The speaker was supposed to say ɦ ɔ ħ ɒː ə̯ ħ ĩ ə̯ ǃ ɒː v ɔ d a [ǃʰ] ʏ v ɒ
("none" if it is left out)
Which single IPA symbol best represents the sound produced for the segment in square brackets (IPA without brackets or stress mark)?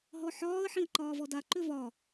ǃ